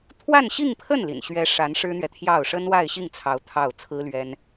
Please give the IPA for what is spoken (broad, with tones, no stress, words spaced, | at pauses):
t̪ʰwa˥˧nɕi˥˧ŋpʰə˥˩n lḭ˨˩nɕɥɛ˥ ʂa˧˥n ʂɻ̩˥n̪ɥɛ˨t̪ʰjɑ˥˩ʊ̯ ʂə˥nwa˥˧ɪ̯ɕi˥˩ŋt͡sʰɑ˧˥ʊ̯ t̪ʰɑ˥˩ʊ̯ t͡sʰɹ̩˥lɥɛ˥n